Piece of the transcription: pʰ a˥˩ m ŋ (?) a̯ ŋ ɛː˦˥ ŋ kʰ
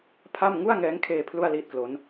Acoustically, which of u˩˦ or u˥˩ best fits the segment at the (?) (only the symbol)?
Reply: u˥˩